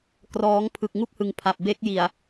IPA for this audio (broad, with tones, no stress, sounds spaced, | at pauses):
k r ɔː˦˥ ŋ pʰ ɯ˨˩ k̚ ŋ u˥˩ k̚ h ɯ˨˩ ŋ pʰ a˨˩ p̚ b e˦˥ k̚ j i˨˩ a̯